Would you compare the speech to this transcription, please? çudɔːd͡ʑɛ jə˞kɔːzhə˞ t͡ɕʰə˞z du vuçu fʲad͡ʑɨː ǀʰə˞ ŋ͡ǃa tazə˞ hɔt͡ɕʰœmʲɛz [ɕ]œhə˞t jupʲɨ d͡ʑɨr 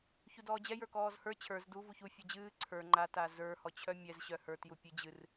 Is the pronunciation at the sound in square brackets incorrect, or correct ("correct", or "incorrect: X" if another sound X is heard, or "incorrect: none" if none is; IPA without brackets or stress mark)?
correct